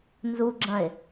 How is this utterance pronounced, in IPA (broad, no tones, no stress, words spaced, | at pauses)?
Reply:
nzuɡ͡ǁɐ̃e̯